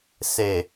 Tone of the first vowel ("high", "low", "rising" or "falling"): low